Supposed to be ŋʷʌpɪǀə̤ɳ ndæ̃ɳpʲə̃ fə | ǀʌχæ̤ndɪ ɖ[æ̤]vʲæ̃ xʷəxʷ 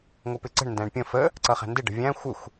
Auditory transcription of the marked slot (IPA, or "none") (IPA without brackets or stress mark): ə̤